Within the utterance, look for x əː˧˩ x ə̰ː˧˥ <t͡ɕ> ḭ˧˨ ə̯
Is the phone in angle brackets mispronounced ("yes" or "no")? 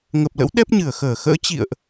no